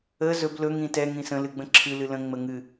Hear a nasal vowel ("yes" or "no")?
yes